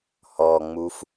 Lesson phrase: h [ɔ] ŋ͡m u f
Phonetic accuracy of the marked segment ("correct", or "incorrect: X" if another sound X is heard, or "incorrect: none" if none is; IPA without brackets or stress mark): correct